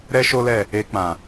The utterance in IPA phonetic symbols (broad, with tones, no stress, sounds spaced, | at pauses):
ɾ ɛ˦ ʃ o˦ l ɛ˦˨ | e˧ k͡p ã˨